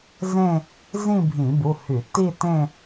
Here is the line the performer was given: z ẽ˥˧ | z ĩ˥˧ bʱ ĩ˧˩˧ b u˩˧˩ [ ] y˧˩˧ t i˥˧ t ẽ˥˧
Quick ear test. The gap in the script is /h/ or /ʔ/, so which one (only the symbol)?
h